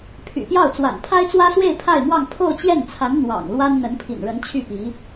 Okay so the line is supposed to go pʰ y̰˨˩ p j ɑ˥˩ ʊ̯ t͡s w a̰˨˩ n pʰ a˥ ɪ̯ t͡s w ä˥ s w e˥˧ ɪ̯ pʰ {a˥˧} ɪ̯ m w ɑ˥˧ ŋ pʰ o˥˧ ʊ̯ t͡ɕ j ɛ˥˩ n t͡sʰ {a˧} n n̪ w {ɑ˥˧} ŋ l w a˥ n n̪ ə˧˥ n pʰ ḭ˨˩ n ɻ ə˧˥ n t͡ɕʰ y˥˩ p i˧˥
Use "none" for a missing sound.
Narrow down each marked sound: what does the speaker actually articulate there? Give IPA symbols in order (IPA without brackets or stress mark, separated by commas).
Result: a˥˧, a˧˥, ɑ̰˨˩